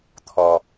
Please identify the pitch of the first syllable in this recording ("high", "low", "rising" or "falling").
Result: high